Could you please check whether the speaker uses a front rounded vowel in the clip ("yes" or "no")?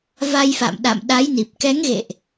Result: no